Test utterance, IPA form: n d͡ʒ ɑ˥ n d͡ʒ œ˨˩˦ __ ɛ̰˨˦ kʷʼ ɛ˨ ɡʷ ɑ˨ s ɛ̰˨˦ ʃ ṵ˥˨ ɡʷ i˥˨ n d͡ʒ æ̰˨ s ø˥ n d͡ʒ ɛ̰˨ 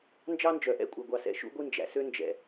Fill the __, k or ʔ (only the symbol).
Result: ʔ